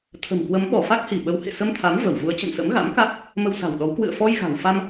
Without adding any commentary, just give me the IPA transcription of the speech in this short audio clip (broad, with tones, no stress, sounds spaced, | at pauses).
t̪ʰ ə̤˨˩ m k w ə˨˦ m ɓ ɔ˧˩ f a˦˥ k̚ h i˧˩ ɓ ə˨˦ w h ḛ˧˨ s ə˧ m t̪ʰ a˨˦ m v ə˧˩ w v u˨˦ ə̯ t͡ɕ ə̰˧˨ n s ə̰˧˥ m ɣ a̰˧˥ m k a˦˥ k̚ | m ə˧ w s a̤˨˩ w ɗ ɔ˨˦ w k w ɨ̰˧˨ ə̯ f ɔ˧ j ɣ a̤˨˩ w f a˧ m